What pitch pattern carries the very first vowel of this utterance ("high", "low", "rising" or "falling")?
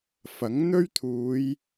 rising